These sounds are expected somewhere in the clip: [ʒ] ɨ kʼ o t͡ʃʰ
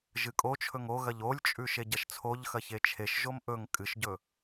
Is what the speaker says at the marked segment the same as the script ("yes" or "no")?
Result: yes